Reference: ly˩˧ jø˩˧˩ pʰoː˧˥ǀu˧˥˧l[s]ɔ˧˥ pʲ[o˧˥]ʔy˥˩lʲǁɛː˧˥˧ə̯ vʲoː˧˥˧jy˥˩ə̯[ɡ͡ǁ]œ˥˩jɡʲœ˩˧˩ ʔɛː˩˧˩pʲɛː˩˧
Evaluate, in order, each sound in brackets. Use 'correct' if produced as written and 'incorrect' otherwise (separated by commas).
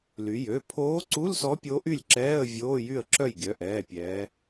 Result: correct, correct, incorrect